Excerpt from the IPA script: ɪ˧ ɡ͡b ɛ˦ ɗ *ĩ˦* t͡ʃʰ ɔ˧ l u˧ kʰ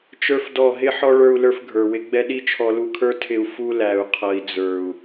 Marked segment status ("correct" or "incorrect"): incorrect